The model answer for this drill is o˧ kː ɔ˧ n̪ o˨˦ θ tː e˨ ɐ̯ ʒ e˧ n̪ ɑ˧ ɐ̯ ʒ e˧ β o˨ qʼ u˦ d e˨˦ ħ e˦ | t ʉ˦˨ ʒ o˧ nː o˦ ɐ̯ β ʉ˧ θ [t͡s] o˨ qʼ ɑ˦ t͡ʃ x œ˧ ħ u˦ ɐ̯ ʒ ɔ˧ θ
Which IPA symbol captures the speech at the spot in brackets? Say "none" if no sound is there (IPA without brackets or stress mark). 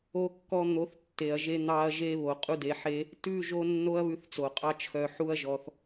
t͡s